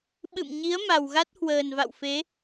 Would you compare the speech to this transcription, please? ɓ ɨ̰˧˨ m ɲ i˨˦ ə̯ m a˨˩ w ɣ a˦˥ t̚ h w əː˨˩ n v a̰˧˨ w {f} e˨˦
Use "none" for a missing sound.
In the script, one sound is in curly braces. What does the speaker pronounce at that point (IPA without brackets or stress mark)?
f